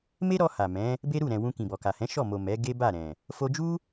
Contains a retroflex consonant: no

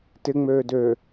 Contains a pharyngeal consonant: no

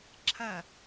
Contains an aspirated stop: yes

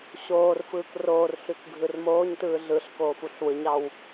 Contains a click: no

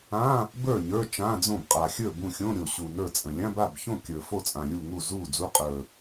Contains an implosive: no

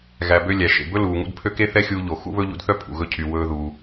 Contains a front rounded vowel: yes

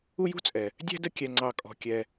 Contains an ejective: yes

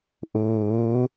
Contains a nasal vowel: no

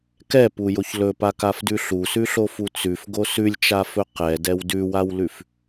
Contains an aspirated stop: no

